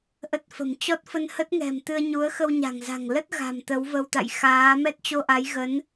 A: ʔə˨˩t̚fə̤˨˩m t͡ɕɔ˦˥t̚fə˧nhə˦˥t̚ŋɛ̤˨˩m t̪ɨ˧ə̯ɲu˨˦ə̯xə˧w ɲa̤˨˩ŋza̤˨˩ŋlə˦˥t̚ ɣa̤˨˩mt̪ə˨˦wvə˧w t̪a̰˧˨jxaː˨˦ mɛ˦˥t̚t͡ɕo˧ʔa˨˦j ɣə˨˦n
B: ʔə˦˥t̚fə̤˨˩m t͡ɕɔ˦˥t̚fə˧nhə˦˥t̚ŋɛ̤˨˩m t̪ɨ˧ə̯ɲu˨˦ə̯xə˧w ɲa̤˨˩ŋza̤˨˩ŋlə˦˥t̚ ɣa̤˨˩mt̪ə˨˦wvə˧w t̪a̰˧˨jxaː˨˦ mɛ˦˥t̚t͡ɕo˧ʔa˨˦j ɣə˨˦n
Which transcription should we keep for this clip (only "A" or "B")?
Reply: B